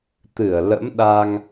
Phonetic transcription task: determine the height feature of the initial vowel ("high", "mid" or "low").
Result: high